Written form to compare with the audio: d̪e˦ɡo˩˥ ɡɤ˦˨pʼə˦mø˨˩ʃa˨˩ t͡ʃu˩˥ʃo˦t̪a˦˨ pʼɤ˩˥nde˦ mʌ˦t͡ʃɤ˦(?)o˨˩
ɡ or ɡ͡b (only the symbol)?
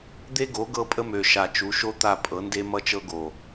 ɡ